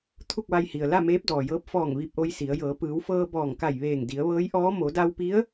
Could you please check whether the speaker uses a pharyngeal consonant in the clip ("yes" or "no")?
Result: no